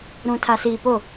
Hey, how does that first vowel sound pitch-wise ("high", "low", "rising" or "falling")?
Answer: low